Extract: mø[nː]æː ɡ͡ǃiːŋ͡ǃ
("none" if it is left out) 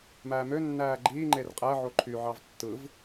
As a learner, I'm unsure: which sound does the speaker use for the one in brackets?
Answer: nː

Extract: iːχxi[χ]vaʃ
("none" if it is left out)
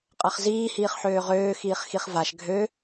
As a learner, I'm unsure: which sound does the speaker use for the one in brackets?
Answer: χ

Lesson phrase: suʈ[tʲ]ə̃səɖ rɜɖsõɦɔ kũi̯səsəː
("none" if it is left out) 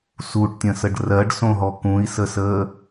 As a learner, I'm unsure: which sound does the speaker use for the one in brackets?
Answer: tʲ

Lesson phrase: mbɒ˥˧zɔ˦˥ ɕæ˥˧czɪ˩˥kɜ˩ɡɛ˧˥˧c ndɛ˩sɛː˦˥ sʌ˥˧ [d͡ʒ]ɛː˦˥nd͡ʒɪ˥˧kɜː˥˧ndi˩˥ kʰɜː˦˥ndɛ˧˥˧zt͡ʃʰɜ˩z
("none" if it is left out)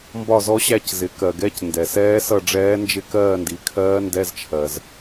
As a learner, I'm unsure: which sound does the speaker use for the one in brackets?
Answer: ɖ͡ʐ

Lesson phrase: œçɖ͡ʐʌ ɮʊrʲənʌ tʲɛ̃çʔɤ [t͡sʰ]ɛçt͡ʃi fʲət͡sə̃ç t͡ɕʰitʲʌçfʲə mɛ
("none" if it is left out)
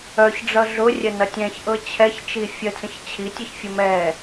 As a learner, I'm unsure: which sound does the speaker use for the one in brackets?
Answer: t͡ɕʰ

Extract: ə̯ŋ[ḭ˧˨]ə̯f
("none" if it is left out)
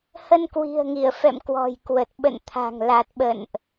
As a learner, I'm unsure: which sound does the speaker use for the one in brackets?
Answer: i˧˩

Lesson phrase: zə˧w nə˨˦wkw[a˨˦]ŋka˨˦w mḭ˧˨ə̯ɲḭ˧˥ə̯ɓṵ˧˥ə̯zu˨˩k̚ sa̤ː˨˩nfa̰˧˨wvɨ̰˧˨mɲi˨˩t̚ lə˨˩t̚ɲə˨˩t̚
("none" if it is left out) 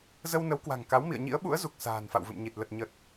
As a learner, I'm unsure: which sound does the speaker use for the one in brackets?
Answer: a̤˨˩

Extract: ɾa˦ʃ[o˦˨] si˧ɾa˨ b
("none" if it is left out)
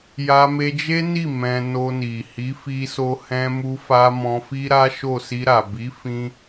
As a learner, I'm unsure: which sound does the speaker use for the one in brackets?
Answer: o˦˨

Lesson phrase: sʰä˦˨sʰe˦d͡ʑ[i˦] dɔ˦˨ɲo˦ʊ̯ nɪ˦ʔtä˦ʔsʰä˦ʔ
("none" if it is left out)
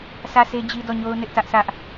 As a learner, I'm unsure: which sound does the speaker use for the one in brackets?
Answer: i˦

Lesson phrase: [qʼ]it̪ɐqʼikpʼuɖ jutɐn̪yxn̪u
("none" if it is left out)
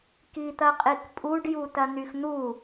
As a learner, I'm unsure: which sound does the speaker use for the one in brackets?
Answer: k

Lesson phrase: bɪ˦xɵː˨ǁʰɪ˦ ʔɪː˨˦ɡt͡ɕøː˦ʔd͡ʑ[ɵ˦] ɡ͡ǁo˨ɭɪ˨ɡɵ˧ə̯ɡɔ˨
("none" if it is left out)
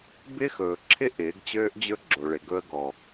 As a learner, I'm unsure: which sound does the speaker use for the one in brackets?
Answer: ɵ˦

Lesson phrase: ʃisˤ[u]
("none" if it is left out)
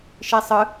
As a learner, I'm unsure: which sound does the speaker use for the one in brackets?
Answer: ɯ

